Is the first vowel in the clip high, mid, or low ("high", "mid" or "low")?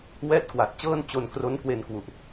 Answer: mid